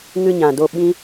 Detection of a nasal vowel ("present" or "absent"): present